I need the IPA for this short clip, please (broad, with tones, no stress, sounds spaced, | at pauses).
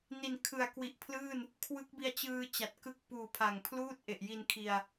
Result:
n i˨˩ n kʰ ɯ˨˩ a̯ k w i˨˩ ʔ pʰ l ɯː˥˩ n | kʰ w ɯ˦˥ k̚ b i˧ a̯ t͡ɕ ɯː˧ t͡ɕ a˨˩ t̚ k ɯ˦˥ k̚ p uː˨˩ pʰ a˨˩ ŋ pʰ l uː˥˩ t̚ ʔ e˨˩ ʔ j i˧ n kʰ i˧ a̯